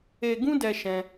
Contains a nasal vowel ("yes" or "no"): yes